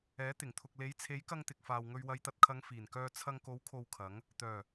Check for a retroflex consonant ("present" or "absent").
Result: absent